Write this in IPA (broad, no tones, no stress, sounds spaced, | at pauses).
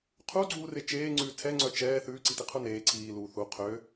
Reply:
qʰ u ɡ͡ǀ uː r e t͡ʃ eː ŋ͡ǀ ʉː tʰ ɛ ŋ͡ǀ œ t͡ʃ ɛː θ ʉː ǀ i t i qʰ u n eː ǀʰ iː l uː θ u qʰ ø